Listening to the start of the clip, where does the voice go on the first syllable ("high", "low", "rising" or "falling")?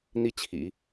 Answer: high